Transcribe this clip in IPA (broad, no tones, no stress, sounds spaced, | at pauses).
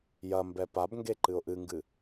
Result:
j ɐ m b ɛ p a b ŋ ɡ e ǃ ɨ ʊ̯ ʔ ɨ ŋ ɡ ɨ